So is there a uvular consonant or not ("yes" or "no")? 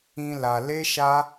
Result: no